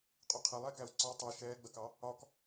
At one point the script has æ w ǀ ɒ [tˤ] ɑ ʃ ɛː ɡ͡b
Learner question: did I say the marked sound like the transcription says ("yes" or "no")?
yes